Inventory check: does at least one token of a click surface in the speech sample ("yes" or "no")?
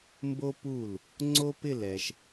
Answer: yes